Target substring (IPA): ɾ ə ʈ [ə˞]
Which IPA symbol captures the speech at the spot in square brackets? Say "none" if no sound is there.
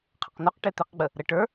ə˞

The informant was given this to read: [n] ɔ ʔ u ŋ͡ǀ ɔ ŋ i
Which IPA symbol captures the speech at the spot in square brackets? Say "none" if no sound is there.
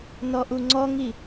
n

